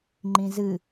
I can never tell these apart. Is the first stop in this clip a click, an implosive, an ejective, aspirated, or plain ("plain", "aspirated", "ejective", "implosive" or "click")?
click